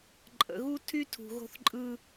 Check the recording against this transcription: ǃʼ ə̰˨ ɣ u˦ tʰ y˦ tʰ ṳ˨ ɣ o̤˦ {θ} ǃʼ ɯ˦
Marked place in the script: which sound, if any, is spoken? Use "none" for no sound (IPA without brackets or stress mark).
θ